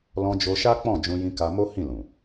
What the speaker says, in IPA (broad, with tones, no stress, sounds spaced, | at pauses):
l ɔ̃˧ d͡ʒ o˧ ʃ a˦ k͡p ɔ̃˦˨ d͡ʒ ũ˧ j ĩ˧ k a˧ m o˦ h ĩ˦˨ l ũ˨